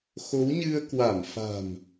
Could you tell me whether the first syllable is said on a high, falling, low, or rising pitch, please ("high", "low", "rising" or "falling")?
rising